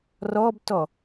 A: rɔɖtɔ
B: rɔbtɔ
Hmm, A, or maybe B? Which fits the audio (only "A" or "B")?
B